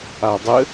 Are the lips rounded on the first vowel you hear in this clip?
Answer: no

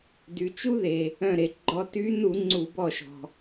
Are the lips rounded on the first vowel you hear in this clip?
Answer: yes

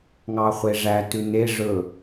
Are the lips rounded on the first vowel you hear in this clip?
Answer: no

